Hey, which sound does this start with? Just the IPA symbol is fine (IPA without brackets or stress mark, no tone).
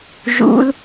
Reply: ʒ